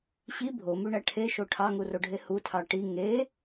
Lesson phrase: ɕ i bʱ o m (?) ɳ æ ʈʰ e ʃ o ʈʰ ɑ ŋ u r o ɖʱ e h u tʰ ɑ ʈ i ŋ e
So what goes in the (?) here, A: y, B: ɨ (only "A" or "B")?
A